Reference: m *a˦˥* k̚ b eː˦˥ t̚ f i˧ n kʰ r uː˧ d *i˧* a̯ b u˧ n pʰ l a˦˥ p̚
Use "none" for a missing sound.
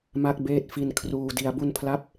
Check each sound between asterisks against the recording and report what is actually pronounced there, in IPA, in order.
a˦˥, i˧

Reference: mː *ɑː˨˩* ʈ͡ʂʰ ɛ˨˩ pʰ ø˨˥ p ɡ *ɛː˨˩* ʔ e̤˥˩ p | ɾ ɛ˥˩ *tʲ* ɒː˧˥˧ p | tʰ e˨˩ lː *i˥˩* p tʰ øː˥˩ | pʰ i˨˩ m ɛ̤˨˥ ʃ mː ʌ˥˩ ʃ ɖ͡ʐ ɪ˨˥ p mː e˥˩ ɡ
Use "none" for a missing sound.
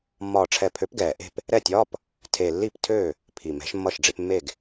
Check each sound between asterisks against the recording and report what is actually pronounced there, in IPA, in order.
ɒː˨˩, ɛː˨˩, tʲ, i˥˩

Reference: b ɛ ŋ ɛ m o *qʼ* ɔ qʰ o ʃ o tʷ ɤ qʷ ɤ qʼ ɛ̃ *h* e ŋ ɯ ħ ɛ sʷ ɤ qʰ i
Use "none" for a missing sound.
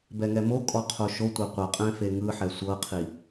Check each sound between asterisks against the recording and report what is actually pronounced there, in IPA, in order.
kʼ, f

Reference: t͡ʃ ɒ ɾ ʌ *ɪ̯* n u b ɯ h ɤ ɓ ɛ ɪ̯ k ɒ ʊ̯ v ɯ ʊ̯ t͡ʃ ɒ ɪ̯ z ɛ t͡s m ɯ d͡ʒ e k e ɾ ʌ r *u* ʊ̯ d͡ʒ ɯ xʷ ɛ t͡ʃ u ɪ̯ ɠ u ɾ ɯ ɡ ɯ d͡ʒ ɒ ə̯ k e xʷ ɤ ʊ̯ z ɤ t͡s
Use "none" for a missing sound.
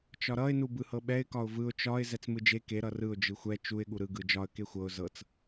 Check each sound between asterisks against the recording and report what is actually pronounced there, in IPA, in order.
ɪ̯, ɯ

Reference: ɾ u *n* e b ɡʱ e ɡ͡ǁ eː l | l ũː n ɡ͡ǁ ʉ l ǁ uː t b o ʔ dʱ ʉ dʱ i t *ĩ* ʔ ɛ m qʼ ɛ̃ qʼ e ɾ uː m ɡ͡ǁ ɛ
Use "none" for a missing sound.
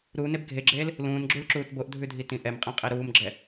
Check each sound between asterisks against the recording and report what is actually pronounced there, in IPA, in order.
n, ĩ

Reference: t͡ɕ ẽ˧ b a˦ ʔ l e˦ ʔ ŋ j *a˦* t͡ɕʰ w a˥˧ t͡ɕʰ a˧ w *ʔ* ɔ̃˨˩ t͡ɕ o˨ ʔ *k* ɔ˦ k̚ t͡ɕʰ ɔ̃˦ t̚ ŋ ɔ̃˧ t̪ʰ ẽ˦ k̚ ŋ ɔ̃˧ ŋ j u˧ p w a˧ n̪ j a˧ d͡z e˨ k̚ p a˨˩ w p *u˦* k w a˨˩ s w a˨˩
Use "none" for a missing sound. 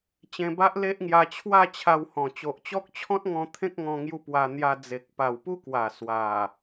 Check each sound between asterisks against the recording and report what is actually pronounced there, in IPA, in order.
a˧, h, t͡ɕ, u˦

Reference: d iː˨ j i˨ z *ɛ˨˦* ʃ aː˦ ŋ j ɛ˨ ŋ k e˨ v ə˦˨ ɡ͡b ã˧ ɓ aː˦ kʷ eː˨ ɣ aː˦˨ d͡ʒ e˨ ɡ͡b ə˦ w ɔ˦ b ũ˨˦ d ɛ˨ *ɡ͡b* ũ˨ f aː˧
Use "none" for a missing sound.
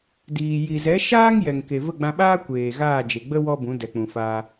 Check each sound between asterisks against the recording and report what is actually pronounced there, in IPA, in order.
ɛ˨˦, k͡p

